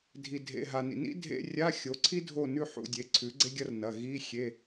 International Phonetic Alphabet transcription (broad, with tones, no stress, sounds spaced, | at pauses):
dʱ i˩ dʱ ḛ˩˧˩ ɦ a˩ n ḭ˩ n ḭ˥ dʱ ḛ˧˥˧ rʲ a˧˥˧ xʲ o˩˥ ǀʰ i˥ dʱ o˥˨ n ʉ˥˨ ħ ṵ˥˨ dʲ e˩˧˩ ǀʰ ʉ˩˥ ɡ͡ǀ e˥ ɡʲ ɐ˥ r n ɐ˩˧˩ ɣ i˧˥˧ xʲ e˧˥˧